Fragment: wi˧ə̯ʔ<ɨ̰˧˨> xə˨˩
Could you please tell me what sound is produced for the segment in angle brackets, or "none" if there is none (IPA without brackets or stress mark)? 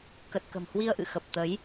ɨ̰˧˨